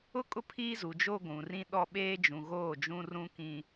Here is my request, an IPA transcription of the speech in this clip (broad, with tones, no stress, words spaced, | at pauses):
ʊ˦kʼʊ˦ pʰiː˦zu˨d͡ʒo˦ ɡʷũ˨rĩ˦ ɗɔ˦ ɓeː˦d͡ʒũ˨ ɣoː˦˨d͡ʒũ˦ rũ˦kĩ˦